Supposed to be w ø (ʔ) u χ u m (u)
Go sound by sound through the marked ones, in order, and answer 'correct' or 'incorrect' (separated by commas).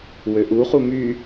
correct, incorrect